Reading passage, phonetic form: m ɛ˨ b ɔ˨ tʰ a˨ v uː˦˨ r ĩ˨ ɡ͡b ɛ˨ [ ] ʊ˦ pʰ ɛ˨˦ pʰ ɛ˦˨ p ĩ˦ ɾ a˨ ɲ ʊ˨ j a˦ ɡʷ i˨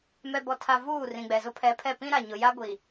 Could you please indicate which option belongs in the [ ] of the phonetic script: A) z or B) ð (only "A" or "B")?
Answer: A